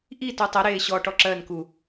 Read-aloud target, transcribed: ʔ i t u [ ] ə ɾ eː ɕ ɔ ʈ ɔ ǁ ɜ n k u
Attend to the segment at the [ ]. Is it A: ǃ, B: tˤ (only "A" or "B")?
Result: B